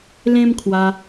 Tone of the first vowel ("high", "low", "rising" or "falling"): high